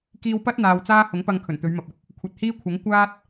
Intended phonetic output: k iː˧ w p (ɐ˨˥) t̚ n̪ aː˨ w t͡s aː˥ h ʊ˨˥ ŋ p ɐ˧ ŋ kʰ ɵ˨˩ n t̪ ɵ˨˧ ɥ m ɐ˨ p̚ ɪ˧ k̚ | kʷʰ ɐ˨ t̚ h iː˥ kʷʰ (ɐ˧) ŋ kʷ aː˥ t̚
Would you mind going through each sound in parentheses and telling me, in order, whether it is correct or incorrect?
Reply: incorrect: ɐ˥, incorrect: ɐ˨˥

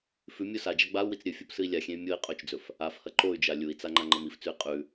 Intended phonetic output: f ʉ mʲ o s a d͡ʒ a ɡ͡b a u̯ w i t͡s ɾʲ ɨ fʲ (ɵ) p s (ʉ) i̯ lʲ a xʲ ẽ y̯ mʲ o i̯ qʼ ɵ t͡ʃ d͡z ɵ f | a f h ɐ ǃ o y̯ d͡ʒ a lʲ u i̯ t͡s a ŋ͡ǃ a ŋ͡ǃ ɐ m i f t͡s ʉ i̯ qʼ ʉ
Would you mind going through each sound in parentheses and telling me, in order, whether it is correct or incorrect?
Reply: incorrect: o, incorrect: ɨ

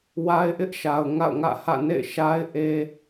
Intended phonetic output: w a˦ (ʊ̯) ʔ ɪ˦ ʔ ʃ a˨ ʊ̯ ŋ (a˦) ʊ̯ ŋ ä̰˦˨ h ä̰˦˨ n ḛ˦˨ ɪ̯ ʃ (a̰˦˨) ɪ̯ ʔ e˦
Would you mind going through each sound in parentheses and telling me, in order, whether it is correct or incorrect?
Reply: incorrect: ɪ̯, incorrect: a̰˦˨, incorrect: a˦

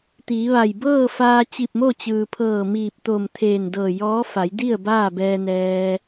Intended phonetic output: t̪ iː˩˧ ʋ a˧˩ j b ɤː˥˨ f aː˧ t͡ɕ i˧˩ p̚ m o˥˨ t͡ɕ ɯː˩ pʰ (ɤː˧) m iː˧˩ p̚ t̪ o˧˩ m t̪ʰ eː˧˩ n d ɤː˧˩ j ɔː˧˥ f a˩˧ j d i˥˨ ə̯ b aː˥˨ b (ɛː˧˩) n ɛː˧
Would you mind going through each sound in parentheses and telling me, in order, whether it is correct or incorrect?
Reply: incorrect: ɤː˧˩, incorrect: ɛː˧

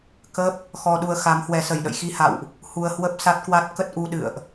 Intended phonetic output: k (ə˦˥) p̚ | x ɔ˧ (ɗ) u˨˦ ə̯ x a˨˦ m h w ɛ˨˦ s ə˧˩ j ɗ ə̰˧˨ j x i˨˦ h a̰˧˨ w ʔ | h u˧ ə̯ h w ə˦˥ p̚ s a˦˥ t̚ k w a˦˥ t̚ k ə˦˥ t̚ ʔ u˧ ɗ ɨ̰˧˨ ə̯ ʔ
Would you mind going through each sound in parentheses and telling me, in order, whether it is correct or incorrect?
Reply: correct, correct

